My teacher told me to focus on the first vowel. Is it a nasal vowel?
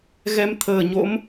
no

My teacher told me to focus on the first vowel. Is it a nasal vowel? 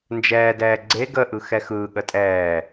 no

